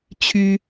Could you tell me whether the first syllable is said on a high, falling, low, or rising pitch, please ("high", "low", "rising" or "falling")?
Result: high